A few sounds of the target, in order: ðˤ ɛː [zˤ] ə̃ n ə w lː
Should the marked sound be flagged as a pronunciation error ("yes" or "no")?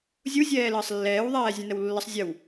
yes